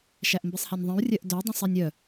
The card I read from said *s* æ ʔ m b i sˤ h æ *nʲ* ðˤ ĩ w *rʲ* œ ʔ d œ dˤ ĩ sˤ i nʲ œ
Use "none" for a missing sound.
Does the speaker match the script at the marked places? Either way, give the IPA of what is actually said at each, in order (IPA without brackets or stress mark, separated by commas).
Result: ʃ, nʲ, rʲ